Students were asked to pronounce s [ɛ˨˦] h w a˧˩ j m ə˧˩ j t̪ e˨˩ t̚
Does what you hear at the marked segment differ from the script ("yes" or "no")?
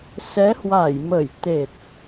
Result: no